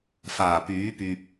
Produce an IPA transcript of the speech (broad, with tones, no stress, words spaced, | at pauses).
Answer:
faː˨˩pyː˨˥pyː˨p̚